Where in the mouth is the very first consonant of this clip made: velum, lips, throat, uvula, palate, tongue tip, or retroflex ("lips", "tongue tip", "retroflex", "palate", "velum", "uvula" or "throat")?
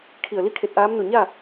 velum